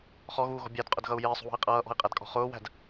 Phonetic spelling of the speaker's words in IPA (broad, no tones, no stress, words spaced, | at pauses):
χɔɣuːɣɔ̤ bʲædqʼʊdɣʌu̯ jɪːsˤṳwɔ̤i̯ qʼʌːʔɔ̤i̯qʼædkʼɔ̤ χʊːwæ̤d